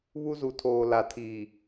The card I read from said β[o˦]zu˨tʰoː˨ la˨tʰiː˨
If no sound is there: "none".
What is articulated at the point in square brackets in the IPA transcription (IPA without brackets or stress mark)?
u˦